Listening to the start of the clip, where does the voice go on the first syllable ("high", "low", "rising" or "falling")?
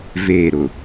falling